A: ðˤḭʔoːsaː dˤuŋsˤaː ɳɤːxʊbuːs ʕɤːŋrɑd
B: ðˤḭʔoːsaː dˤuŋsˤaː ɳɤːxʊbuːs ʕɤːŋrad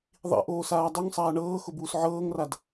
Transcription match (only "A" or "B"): B